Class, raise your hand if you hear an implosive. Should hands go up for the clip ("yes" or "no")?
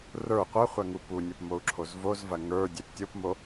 no